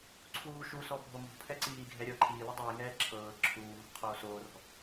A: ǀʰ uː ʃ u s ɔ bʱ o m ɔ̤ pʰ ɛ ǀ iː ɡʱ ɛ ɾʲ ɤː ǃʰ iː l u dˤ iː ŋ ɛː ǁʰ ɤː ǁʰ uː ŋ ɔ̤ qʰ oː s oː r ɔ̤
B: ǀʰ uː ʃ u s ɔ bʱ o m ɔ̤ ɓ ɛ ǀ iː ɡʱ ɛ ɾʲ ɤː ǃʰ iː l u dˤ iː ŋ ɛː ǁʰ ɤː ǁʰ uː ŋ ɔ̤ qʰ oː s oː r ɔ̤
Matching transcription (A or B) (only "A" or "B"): A